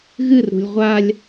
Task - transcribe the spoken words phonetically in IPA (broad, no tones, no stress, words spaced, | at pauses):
ɣɨrɾṳlʲ ʁʷalʲ